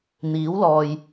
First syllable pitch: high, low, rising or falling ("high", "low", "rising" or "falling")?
rising